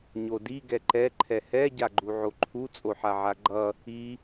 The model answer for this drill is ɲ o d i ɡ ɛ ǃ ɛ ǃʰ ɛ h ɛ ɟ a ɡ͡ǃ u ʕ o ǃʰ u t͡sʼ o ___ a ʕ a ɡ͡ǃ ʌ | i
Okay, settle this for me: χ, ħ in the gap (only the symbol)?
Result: ħ